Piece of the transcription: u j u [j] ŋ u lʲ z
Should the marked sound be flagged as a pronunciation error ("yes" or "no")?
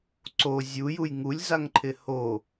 no